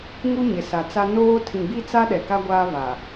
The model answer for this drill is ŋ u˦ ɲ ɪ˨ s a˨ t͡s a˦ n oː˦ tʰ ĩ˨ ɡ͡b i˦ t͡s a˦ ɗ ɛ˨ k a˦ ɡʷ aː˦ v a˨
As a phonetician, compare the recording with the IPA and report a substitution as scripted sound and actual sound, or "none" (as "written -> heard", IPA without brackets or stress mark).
none